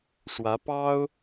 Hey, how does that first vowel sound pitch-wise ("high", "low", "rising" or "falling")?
rising